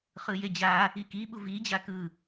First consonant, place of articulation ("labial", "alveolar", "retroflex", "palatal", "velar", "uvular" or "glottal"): uvular